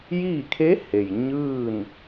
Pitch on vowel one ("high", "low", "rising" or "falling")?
falling